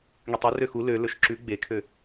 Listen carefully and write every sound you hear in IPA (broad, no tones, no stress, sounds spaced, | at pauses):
ŋ y tˤ ɵ r ø x u l ø l ɵ ʃ ǁ ʉ ɡ͡b e kʰ ø